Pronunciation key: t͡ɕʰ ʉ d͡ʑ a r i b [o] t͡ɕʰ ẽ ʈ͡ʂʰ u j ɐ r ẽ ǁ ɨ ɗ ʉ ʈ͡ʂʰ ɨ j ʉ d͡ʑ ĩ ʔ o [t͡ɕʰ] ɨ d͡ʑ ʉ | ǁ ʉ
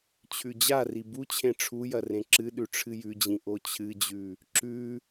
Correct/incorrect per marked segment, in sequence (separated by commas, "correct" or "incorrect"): incorrect, correct